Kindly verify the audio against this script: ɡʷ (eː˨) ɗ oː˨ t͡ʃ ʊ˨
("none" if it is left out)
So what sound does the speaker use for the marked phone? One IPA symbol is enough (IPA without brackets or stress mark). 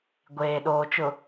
eː˨